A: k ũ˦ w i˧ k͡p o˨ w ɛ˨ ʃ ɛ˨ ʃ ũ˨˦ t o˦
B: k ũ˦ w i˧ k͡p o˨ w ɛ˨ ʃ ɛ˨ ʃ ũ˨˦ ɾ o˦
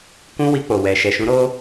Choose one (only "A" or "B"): B